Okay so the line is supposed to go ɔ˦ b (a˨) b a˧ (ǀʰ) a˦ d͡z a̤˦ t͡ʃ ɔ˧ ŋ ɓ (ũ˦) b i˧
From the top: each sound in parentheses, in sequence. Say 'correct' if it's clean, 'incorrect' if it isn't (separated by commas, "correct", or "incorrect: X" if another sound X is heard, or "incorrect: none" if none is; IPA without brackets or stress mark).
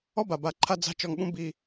correct, incorrect: ǃʰ, correct